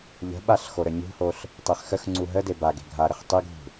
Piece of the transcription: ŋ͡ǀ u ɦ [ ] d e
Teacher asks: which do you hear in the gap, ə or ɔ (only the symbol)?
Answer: ə